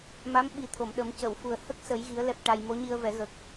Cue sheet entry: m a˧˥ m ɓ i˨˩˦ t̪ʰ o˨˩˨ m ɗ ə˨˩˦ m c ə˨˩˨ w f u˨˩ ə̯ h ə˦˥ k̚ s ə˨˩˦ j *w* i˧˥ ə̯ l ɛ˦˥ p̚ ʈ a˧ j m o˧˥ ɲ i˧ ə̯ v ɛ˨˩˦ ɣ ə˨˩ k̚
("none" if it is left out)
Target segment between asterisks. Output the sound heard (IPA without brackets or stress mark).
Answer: ɣ